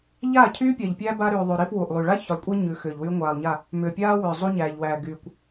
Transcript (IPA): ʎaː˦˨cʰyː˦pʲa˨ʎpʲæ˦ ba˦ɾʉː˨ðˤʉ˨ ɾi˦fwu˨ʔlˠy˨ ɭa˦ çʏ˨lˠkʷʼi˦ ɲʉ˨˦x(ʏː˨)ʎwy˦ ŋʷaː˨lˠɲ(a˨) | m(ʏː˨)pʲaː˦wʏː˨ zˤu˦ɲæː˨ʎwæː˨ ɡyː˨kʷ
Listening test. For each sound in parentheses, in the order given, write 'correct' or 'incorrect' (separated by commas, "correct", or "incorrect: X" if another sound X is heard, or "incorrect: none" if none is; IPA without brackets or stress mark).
correct, incorrect: a˦˨, correct